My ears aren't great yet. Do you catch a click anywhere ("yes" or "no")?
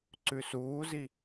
yes